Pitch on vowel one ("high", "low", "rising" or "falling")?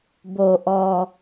low